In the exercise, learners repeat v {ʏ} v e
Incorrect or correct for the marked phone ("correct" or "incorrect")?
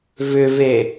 correct